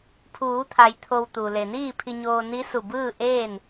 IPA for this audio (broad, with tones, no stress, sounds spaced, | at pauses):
pʰ uː˩˧ t̪ʰ a˩ j t̪ʰ o˧ w t̪ u˩ l e˩ n iː˥˨ pʰ i˧ ɲ oː˧ n i˧˥ s u˧˩ b ɯː˥˨ ʔ eː˥˨ n